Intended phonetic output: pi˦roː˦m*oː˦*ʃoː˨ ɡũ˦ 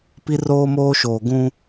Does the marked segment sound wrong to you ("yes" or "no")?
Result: no